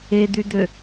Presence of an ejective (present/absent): absent